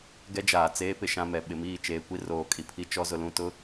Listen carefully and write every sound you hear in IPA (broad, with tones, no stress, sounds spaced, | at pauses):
ɡ ɛ˦ d͡ʒ aː˨ t͡s eː˦ p ɪ˨ ʃ ã˦ m ɛ˨ ɓ ɪ˨ m iː˦˨ t͡ʃ eː˨ kʷ i˦ r oː˨ kʼ i˨ pʰ i˦ t͡ʃ ɔ˦ z ʊ˨ l ũ˦˨ t ʊ˦